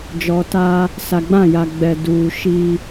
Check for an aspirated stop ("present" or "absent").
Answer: absent